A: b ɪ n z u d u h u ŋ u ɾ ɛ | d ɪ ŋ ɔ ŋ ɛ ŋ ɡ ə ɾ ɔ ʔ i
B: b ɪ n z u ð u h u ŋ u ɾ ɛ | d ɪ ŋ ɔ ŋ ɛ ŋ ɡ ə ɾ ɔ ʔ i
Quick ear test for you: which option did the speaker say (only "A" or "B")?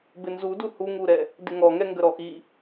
A